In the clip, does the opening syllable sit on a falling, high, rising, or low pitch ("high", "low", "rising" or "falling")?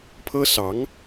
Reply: high